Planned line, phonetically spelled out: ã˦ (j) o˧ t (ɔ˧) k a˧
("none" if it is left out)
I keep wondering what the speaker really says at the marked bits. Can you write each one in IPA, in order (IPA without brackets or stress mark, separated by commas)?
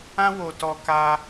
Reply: w, ɔ˧